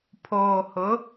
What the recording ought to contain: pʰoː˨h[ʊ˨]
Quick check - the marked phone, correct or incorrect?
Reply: incorrect